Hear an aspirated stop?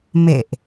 no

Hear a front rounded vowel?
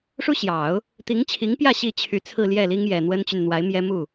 yes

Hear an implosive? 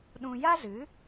yes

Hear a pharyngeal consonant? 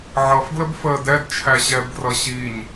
yes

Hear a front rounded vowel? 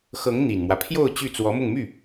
yes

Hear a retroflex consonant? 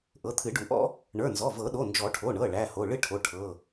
yes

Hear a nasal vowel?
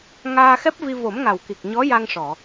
no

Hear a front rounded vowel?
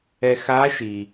no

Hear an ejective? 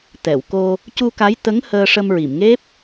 no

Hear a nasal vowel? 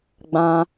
yes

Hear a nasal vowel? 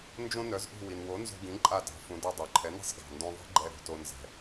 yes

